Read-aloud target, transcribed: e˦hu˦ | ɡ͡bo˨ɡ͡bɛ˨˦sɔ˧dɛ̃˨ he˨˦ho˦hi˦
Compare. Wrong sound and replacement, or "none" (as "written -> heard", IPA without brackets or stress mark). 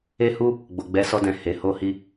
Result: none